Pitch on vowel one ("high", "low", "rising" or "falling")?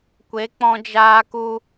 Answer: rising